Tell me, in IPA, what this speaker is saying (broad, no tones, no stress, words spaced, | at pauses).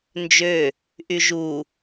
nd͡ʒø | ʔyʒu